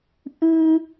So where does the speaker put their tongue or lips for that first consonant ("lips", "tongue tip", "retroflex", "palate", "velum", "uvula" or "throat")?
throat